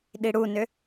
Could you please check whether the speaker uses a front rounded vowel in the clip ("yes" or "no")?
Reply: yes